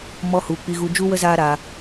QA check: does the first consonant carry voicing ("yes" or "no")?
yes